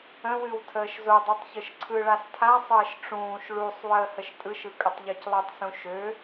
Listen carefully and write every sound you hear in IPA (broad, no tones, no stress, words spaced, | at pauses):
ə̃wɨw tʰəːʃzodˤutˤ çɯʃǀʰɯɭas tʰasˤəːʃ ʈ͡ʂũːʃ ɭusˤ wəːhəʃtʼɯʃɯ kʼətˤʎøclˠɨtˤsũ ʃø